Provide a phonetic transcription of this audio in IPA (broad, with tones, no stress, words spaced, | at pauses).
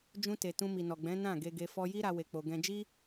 d͡ʒũ˧te˨ tũ˧mi˨nɔ˨ɡ͡bɛ̃˨˦ nã˦˨ɡe˧ɡe˧ fɔ˧ji˦ɾa˧ we˧k͡po˧ɡɛ̃˦ d͡ʒi˦